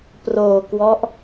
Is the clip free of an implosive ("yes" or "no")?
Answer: yes